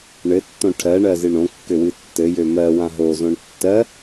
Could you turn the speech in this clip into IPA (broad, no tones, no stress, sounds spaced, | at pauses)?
ɳ ɘ tː õ ʈʰ ɜ ɳ ɜ z ɨ ɳ õ kː ø w ɨ tː ɘ j ø m ɜ w ã ɦ o z õ ɳ tː ɜ